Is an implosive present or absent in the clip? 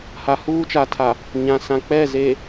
absent